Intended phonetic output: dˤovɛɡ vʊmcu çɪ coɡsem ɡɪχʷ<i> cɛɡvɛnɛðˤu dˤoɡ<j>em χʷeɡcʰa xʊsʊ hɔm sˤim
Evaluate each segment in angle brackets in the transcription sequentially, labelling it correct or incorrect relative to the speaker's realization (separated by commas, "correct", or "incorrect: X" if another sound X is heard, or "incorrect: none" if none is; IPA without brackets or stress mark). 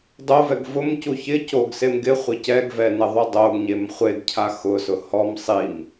incorrect: ɪ, incorrect: ɲ